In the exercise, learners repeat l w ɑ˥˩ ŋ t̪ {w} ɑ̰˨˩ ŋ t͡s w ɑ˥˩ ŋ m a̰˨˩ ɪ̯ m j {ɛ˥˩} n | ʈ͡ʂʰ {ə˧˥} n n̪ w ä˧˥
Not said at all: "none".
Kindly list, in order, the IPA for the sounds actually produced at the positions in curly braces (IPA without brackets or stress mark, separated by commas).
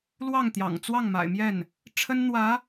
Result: j, ɛ˥˩, ə˥